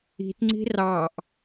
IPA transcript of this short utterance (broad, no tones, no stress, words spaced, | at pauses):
i̤tŋ͡ǀi̤ rɑʔ